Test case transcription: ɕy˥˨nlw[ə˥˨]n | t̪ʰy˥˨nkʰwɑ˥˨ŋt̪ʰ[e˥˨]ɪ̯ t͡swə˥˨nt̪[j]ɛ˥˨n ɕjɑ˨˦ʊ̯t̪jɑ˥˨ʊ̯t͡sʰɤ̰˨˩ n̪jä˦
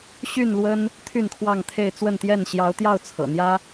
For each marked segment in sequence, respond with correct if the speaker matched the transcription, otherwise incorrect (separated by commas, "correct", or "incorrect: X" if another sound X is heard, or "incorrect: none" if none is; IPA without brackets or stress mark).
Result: incorrect: ə˦, correct, correct